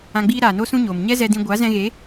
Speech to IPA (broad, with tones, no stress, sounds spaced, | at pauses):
ã˧ ɡ͡b iː˦ ɾ aː˨ n o˦ s ũ˦ ɲ oː˨ m ɲ ɛ˦ z ɛ˧ d ĩ˧ ɡʷ a˨˦ z ɛ̃˧ ɣ e˨˦